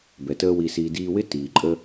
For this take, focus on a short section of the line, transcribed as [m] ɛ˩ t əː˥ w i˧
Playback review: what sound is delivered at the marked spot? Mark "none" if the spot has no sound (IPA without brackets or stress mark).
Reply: b